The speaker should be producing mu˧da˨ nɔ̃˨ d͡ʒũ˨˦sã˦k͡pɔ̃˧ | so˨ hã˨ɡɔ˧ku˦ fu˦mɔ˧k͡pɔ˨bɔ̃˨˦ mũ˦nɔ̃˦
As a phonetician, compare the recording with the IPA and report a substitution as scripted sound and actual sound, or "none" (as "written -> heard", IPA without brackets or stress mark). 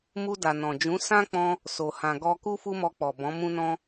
none